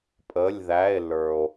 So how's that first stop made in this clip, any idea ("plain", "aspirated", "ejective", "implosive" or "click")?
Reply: ejective